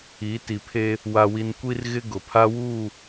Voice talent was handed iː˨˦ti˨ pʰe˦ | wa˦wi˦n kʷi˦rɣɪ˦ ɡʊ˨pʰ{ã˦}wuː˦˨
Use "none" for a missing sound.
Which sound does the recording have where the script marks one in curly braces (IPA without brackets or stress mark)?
a˦